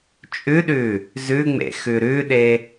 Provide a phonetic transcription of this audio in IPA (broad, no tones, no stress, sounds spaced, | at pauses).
t͡ʃʼ ʉ ɗ ʉ | z ʉ ŋ͡m ḛ x ʉ ɾ ʉ ɗ e